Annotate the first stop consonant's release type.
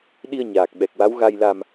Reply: implosive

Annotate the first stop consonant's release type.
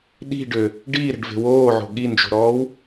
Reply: implosive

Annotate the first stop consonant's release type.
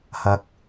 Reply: plain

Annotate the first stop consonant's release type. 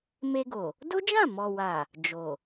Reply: plain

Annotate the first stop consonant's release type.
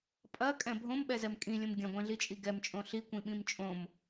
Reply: ejective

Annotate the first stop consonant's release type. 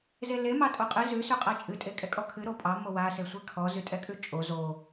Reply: ejective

